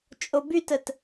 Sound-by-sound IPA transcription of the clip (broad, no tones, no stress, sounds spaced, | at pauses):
t͡ʃʼ o b y t ə t